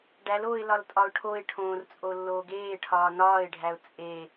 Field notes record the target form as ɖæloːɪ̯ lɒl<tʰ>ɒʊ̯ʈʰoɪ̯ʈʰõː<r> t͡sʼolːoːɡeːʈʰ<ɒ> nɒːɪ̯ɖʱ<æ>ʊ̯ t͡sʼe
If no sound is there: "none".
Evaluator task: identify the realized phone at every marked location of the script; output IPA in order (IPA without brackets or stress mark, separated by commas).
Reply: tʼ, r, ɒː, æ